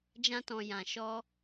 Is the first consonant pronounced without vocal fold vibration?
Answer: no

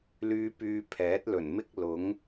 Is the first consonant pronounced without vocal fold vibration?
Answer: no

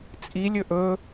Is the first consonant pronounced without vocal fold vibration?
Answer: yes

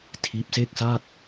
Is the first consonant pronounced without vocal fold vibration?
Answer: yes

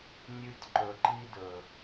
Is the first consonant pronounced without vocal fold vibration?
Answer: no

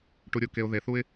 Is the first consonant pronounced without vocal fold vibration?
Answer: yes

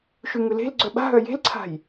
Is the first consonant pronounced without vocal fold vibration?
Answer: yes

